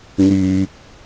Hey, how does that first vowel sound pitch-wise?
low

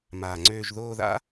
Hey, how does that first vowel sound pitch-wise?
low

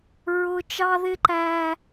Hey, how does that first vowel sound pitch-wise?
high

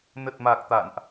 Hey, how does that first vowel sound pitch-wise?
low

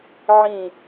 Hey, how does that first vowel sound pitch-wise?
falling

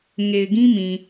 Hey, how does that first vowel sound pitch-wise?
low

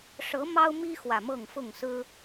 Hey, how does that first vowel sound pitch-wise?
rising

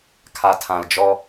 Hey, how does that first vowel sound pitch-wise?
low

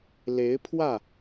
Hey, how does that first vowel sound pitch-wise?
rising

